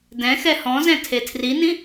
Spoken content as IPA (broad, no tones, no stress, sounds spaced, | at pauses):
d ɛ̃ x ɛ h ɔ̃ z ɛ̃ tʰ e tʰ r i n ĩ